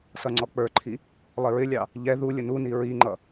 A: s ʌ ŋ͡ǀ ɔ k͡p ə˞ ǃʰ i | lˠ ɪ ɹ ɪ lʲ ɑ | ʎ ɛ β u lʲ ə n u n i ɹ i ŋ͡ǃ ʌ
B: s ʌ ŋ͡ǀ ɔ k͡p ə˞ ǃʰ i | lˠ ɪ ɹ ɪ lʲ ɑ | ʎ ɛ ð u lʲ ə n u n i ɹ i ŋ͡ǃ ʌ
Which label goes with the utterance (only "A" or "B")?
B